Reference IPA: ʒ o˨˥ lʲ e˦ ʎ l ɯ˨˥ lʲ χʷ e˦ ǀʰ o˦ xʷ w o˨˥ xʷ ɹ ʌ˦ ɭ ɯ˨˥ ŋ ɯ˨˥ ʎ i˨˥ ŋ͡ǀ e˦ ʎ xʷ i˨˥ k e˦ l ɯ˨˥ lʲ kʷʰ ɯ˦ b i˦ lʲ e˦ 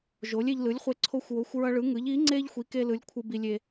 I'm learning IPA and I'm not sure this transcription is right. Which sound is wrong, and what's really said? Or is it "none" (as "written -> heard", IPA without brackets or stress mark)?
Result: none